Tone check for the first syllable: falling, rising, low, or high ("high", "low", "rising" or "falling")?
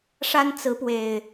high